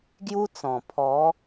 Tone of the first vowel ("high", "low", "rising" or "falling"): high